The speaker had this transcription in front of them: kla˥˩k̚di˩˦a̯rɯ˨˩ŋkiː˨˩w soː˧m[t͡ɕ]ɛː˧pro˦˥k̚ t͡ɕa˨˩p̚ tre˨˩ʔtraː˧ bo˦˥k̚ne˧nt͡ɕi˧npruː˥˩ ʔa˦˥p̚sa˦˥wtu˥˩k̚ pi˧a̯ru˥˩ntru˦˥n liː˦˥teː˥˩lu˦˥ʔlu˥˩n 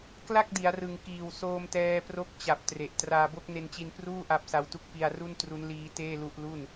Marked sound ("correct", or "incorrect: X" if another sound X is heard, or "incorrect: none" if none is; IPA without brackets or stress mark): incorrect: t